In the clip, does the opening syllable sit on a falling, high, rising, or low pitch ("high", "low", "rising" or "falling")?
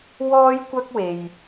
high